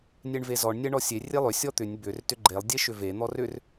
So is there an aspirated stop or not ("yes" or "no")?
no